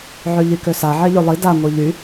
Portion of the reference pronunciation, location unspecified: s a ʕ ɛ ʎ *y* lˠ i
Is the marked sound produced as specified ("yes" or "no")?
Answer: yes